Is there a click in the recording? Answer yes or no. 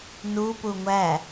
no